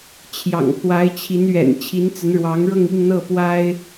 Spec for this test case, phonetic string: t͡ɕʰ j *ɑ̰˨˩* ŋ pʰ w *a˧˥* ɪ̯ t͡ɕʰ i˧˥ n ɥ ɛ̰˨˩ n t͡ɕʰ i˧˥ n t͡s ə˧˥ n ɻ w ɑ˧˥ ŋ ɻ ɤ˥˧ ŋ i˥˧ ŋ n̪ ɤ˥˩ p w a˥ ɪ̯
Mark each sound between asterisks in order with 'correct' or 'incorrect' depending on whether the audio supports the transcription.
correct, correct

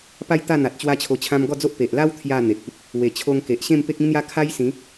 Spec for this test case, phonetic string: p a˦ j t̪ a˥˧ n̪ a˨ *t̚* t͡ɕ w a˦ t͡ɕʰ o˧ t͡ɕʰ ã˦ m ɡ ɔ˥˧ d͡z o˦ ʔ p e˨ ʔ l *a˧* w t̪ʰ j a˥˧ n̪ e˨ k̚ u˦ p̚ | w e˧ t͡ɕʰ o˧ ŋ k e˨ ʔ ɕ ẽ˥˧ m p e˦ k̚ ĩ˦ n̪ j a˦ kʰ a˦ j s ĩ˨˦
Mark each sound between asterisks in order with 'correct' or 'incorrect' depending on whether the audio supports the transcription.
correct, incorrect: a˦

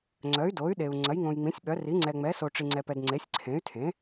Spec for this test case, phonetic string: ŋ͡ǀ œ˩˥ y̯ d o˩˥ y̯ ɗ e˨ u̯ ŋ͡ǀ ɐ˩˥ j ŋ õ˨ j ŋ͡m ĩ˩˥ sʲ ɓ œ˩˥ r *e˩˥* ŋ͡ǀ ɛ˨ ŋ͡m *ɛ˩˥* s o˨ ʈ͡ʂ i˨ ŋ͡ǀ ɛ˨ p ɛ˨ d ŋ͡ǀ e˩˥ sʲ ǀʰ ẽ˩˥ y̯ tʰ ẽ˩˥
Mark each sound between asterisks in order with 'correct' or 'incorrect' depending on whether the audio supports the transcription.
incorrect: i˩˥, correct

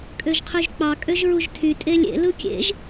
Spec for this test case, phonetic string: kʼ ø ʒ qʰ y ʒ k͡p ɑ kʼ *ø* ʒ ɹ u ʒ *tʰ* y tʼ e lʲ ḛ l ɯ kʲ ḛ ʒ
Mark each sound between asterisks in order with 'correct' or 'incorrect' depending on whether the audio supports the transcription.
correct, correct

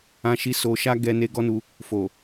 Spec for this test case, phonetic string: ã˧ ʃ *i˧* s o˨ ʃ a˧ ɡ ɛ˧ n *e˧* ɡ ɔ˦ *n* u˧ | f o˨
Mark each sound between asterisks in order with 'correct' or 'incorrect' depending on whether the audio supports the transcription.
correct, correct, correct

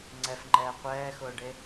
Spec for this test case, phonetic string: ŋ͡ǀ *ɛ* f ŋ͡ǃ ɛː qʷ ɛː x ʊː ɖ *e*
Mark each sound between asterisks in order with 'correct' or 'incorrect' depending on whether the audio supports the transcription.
correct, correct

